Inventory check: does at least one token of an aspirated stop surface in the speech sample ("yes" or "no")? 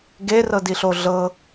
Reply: no